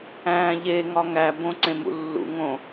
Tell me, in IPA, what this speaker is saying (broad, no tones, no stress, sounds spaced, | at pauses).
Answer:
æ̃ː ʎ e ŋ ɒ ŋ æ b õ ǀ ẽ m ṵ lː ṵ ŋ õ